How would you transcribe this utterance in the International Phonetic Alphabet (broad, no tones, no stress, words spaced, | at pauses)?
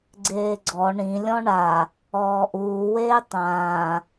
ɡ͡ǀeːɡ͡ǀɔ ɳĩ lʲɔ̃ɳa | ɔːʔuːweː tˤãː